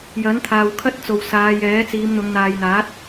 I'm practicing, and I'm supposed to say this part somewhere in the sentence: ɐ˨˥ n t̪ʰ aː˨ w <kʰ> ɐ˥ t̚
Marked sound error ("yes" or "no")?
no